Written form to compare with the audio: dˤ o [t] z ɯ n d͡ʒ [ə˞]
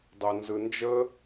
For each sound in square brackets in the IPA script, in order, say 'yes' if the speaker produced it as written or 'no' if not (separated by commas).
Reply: no, no